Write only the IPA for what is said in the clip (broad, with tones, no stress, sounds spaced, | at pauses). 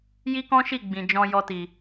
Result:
j i˦ k ɔ̃˦ ʃ i˦˨ ɡ͡b ĩ˨ d͡ʒ ɔ̃˧ j ɔ˧ t i˨